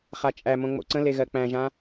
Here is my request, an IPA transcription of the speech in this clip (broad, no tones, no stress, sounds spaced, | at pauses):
χ a t͡ʃʼ æ m õ ŋ͡m o̰ ǀ ə̃ l e ɣ ɜ k͡p æ̃ ʒ ã